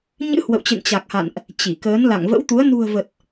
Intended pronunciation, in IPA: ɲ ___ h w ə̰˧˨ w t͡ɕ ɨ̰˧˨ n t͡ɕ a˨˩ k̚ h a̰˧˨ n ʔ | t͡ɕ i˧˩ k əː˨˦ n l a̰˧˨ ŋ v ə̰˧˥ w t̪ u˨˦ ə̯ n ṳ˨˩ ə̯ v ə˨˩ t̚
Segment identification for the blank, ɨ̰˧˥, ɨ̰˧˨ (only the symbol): ɨ̰˧˥